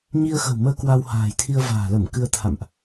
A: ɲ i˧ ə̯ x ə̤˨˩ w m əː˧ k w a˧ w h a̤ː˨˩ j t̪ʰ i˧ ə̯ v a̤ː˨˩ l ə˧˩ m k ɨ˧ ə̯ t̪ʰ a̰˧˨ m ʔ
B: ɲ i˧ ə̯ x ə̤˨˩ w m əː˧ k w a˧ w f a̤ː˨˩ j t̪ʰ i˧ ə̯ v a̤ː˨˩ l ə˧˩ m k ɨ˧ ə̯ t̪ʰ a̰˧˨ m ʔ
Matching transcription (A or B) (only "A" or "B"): A